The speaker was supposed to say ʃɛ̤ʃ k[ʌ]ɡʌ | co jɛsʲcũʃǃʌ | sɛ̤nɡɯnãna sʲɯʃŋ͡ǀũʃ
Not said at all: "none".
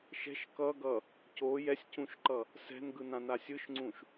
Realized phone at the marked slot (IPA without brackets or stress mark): ʌ